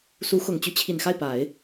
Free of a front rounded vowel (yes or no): no